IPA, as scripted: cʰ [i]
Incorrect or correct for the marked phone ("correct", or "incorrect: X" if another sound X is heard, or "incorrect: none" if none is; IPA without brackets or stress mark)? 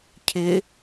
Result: incorrect: ɪ